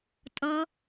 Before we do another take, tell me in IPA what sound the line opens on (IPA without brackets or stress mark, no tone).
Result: tʼ